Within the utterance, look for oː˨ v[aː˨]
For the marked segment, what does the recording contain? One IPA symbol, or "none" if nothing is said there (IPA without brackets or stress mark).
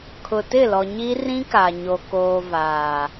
aː˨